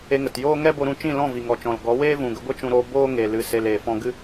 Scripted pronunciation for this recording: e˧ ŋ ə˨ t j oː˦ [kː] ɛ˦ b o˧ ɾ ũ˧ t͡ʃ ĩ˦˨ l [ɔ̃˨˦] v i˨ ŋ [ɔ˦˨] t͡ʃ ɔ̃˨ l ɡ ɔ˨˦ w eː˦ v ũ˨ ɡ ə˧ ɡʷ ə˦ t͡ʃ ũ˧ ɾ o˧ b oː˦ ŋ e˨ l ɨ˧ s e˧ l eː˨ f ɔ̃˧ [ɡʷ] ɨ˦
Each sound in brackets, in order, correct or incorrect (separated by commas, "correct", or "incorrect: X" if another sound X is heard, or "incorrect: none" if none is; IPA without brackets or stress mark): incorrect: ŋ, incorrect: ɔ̃˦˨, incorrect: ɔ˨, incorrect: ɡ